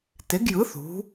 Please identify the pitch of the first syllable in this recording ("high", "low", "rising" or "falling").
rising